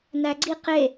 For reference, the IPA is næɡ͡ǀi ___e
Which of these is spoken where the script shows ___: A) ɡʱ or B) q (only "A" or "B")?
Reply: B